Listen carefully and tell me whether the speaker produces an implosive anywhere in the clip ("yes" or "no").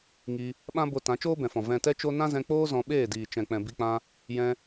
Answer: yes